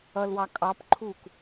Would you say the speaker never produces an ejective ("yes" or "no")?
no